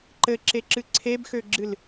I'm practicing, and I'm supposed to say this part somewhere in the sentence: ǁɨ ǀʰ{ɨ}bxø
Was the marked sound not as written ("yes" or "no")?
yes